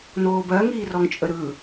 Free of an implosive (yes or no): yes